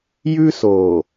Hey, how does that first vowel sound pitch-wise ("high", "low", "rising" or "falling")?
high